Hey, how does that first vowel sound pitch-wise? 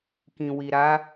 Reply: low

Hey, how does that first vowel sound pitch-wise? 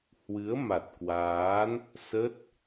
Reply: rising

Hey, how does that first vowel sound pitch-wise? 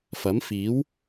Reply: rising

